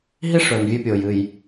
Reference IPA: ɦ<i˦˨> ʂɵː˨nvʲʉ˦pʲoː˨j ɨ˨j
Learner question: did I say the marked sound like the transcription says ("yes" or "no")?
no